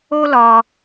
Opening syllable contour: high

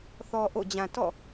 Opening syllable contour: low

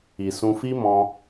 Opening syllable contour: low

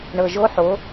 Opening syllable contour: low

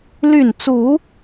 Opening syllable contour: falling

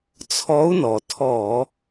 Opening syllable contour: rising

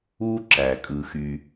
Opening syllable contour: high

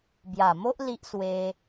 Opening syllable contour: low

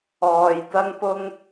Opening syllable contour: low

